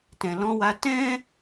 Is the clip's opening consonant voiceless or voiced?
voiceless